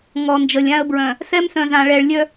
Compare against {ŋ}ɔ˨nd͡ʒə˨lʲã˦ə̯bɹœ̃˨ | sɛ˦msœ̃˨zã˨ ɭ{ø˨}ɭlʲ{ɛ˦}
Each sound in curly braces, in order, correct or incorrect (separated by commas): correct, incorrect, incorrect